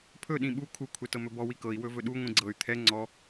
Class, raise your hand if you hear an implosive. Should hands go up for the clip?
yes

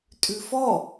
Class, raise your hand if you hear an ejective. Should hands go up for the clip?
yes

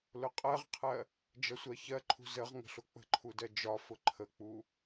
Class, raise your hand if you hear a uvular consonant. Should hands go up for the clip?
yes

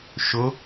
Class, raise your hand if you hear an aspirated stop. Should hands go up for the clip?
no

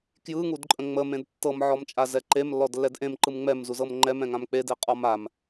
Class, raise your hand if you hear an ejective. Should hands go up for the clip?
yes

